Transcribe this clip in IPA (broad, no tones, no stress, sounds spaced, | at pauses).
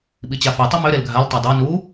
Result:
ɓ i t͡ɕ a f i tˤ i m ø ɾ e l ɡʱ a l tˤ ø dˤ a n u